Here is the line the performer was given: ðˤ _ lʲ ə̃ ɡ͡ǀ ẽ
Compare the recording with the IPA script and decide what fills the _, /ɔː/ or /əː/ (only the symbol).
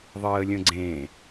əː